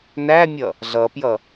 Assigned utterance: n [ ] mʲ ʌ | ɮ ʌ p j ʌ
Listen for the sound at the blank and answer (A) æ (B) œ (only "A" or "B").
A